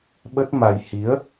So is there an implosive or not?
yes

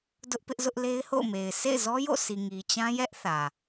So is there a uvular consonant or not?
no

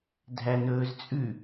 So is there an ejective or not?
yes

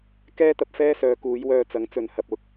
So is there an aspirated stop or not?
no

